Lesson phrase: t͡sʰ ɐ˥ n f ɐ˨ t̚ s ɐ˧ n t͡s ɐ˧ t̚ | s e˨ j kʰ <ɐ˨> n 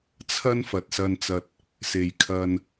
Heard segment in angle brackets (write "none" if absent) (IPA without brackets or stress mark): ɐ˧